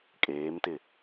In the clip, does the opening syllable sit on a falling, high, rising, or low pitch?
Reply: rising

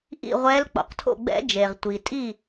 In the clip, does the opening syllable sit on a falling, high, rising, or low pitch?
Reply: falling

